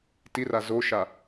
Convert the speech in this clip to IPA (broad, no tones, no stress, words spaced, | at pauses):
tira zoʃa